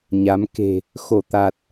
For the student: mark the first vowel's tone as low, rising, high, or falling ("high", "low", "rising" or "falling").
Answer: rising